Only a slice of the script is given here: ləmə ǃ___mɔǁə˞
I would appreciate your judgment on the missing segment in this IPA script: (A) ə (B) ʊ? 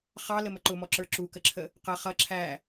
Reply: B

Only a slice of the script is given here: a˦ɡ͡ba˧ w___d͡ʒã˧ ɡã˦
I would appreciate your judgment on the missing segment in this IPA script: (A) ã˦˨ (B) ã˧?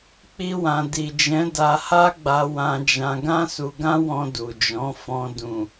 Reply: B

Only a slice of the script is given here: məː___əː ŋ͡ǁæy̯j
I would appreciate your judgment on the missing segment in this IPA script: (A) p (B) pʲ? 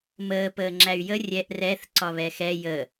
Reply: A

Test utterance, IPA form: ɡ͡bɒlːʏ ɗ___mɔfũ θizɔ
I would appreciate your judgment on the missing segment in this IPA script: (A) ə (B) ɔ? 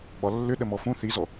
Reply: A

